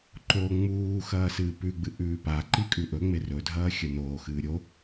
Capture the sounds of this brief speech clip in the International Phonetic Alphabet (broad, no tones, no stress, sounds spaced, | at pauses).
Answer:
ǃ o ŋ͡m uː x ɐː s ɨː p ʉ ɡ͡b ɨ ʔ ʉː p a ǃ i kʼ ʉ ʔ ɵ ŋ͡m e r ɵ dʱ ɐː xʲ ɐ n oː x ɨː ɾʲ o